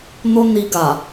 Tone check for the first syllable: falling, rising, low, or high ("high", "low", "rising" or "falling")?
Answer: high